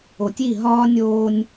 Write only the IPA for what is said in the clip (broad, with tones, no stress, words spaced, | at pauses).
o˨tʲi˦˨ ɦɒː˦nʲoː˦nʲ